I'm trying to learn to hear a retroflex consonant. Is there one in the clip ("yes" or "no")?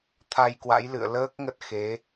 no